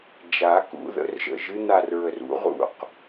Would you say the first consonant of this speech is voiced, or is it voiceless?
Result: voiced